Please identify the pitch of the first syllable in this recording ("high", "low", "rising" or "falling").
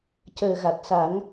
low